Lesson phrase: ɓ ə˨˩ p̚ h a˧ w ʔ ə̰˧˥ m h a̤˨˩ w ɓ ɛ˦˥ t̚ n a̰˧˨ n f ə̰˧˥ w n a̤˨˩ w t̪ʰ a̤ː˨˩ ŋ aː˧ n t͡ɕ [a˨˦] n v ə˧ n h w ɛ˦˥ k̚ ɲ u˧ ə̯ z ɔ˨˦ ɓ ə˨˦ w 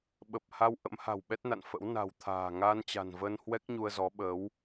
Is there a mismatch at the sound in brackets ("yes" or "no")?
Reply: yes